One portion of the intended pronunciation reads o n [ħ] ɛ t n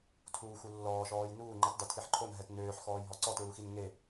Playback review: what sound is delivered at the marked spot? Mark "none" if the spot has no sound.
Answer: ɦ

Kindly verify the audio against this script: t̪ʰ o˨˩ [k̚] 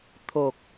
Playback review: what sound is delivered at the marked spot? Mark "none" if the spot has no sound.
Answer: k̚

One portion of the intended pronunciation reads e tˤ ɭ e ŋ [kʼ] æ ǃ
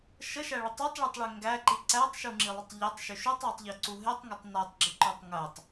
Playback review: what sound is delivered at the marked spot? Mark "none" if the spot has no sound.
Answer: ɡ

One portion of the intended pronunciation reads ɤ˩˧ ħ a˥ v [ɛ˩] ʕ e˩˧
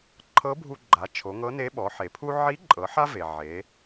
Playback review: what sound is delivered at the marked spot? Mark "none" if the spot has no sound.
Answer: e˩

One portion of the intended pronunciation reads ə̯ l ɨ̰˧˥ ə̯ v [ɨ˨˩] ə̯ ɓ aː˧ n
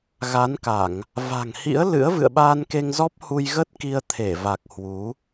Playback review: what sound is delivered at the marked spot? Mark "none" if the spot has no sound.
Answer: ɨ̰˧˨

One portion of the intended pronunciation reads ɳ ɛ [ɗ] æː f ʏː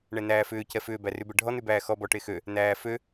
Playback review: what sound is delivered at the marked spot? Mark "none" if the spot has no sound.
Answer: n̪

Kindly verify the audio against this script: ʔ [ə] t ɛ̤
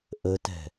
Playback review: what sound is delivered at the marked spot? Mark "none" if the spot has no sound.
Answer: ə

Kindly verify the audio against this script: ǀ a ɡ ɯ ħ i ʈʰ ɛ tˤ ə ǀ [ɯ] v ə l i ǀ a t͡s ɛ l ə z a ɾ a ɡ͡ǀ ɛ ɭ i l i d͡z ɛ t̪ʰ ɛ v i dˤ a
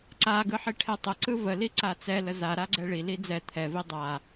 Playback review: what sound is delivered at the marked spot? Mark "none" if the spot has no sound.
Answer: ɯ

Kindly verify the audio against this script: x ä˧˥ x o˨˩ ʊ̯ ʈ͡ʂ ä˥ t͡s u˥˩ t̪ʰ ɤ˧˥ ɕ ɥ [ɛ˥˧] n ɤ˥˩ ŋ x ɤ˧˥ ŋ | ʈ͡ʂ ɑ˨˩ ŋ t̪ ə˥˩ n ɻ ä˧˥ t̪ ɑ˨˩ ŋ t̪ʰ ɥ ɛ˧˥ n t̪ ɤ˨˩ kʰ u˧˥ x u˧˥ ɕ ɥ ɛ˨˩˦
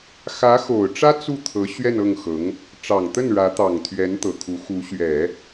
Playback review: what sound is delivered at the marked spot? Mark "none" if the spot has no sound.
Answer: ɛ˥˧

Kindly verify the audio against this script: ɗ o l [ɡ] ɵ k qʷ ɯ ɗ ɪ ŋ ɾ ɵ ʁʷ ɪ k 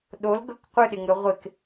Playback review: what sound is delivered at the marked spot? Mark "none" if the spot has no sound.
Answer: ɡ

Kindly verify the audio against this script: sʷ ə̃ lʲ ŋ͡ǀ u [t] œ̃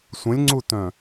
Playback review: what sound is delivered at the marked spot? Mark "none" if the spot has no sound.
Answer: t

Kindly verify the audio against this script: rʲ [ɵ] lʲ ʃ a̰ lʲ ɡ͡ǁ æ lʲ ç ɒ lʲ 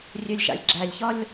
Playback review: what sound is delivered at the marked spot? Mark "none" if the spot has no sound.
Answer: ø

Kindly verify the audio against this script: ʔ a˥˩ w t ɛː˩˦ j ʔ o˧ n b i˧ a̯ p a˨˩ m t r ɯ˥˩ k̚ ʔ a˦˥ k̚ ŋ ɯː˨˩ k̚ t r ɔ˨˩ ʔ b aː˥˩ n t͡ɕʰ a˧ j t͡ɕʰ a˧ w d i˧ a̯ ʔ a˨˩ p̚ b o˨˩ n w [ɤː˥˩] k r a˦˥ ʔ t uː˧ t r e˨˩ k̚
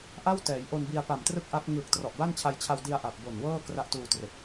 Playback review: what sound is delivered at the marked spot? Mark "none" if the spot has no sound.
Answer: ɤː˥˩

